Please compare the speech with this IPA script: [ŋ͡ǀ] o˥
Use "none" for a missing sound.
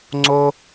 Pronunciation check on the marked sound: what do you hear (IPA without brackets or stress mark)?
ŋ͡ǀ